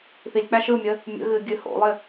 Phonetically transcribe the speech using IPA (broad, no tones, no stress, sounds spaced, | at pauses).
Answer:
θ i lʲ k͡p æ ʃ ɯ mʲ ə | mʲ ə̰ ɣ ɨ ɡʲ ɨ h o̰ lˠ ɪ